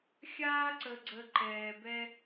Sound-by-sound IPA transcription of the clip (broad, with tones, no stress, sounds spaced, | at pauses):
xʲ aː˥ ǀ ə˧ ɡ͡ǀ ə˧ ǃ ɛː˧ b ɛ˥